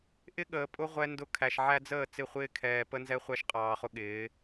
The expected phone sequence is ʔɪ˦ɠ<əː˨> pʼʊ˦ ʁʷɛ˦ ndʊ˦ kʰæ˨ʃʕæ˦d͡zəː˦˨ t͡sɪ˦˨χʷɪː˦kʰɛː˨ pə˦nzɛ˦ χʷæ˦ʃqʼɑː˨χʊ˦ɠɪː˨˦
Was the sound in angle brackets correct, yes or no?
yes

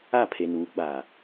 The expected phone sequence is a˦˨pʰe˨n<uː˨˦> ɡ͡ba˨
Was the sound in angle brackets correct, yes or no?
yes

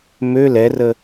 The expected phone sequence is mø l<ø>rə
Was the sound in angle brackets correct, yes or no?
no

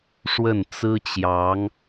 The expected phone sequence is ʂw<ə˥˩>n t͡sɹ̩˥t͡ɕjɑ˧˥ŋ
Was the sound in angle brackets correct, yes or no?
yes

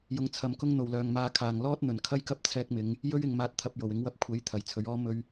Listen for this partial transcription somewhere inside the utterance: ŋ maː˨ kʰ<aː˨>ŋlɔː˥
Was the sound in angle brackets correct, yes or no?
no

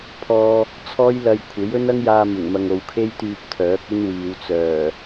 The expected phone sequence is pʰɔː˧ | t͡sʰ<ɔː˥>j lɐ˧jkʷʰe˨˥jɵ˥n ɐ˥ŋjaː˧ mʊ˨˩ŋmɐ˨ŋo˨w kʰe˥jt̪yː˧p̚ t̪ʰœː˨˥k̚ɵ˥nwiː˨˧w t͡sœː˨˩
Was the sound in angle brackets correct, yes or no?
yes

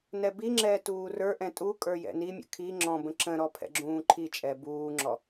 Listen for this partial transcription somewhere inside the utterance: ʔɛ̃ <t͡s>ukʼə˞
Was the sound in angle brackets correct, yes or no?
no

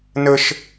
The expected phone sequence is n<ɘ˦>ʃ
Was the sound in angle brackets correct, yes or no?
yes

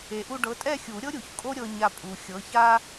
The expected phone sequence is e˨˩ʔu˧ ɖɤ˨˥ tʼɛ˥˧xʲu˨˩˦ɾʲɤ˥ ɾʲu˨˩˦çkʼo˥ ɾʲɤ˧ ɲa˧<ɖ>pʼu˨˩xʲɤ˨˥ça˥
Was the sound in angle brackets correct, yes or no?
no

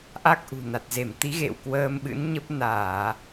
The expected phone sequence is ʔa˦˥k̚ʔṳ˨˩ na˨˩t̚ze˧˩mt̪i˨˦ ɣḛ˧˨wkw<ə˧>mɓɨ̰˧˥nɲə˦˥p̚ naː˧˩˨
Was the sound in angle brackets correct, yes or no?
no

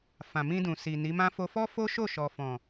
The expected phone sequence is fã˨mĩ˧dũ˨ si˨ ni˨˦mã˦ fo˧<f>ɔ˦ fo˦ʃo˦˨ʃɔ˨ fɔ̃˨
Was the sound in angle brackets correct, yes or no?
yes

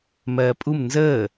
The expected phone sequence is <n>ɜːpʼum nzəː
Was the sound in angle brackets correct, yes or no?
no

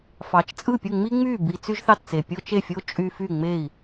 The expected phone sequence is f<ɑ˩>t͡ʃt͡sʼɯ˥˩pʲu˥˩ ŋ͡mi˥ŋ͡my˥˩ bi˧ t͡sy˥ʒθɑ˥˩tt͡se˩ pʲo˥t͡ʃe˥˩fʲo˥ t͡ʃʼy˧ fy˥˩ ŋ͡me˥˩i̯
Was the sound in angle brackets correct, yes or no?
no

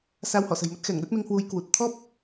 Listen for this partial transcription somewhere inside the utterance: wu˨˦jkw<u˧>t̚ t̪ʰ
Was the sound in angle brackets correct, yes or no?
no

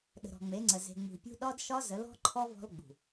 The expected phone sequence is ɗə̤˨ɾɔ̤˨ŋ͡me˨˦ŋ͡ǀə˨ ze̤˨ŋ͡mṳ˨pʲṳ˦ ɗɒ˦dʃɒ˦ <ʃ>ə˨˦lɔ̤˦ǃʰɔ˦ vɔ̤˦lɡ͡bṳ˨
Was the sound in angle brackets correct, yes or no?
no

